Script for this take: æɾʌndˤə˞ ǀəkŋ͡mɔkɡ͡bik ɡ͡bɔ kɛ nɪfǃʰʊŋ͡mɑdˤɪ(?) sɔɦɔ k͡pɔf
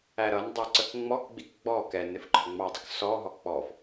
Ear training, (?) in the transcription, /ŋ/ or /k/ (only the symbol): k